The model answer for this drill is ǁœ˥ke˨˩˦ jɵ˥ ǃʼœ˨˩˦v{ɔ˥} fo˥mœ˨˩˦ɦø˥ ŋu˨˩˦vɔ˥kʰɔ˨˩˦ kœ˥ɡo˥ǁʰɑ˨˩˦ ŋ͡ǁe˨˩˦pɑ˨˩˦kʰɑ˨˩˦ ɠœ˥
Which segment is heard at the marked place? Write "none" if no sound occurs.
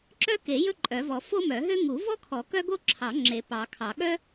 ɔ˨˩˦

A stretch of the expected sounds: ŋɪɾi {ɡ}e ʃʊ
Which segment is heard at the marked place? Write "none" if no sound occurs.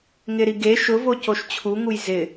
ɡ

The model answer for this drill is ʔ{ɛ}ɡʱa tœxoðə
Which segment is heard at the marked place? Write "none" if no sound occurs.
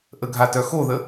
ə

